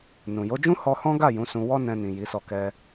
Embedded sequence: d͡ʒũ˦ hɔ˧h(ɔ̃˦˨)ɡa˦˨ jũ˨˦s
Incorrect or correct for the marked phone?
incorrect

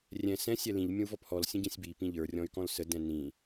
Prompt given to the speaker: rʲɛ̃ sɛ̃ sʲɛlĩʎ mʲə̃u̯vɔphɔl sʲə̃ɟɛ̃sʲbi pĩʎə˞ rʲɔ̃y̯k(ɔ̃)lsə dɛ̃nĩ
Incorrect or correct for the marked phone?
correct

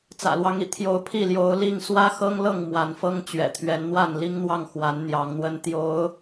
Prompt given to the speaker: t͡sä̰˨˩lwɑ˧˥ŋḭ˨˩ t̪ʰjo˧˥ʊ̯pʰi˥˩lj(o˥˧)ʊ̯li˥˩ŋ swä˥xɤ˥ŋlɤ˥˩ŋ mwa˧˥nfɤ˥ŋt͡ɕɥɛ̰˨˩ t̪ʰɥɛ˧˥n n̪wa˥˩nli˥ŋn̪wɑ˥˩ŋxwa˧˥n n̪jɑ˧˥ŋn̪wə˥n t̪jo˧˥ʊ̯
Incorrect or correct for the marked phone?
incorrect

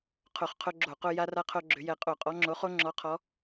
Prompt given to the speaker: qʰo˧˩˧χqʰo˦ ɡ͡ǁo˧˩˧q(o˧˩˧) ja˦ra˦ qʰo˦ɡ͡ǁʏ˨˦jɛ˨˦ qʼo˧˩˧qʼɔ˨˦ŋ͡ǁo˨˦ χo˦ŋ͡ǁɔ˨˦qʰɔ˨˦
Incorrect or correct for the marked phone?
incorrect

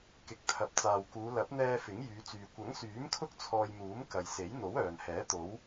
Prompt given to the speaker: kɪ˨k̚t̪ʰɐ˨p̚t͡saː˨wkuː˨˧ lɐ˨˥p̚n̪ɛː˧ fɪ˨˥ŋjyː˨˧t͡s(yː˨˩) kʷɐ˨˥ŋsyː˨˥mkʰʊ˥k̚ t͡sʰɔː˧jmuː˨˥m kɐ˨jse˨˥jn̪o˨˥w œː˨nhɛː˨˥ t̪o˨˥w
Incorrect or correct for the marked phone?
incorrect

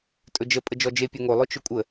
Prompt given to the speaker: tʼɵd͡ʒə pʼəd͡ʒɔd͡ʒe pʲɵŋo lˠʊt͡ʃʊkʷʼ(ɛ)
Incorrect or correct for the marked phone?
incorrect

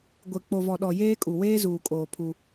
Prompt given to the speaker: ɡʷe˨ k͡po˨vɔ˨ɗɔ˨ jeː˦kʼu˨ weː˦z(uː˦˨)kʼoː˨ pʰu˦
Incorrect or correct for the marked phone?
incorrect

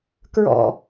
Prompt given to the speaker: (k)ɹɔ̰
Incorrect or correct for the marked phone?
correct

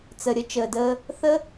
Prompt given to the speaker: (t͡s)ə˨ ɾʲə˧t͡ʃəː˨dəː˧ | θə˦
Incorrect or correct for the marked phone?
correct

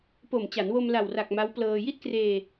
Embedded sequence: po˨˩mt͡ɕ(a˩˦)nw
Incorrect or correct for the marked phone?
correct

